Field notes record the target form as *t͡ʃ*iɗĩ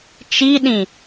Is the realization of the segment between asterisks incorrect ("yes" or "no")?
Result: no